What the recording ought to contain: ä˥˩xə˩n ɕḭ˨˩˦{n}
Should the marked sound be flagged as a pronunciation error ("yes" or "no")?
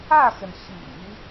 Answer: yes